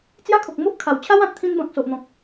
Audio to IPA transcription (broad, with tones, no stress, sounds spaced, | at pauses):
t͡s j a˦ kʰ o˨ k̚ m o˦ ʔ kʰ a˨˩ w t͡ɕʰ a˦ w ã˨ t̚ t̪ʰ ĩ˧ n b ã˨ k̚ s o˨ ʔ n̪ ɔ̃˨ k̚